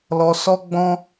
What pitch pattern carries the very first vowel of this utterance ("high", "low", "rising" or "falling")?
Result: low